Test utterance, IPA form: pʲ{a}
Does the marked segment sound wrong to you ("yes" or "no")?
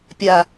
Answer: no